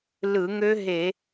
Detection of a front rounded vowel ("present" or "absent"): present